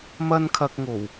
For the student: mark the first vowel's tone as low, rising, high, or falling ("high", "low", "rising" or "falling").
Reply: high